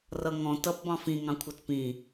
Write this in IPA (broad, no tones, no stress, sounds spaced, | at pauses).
r ʌ ŋ ɔ̃ t ʌ p b ɑ̃ f ĩ ŋ ɑ̃ kʷʰ ʌ t p ĩ